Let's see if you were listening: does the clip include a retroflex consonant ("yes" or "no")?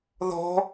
no